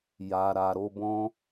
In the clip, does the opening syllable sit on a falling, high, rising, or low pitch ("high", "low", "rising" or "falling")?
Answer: low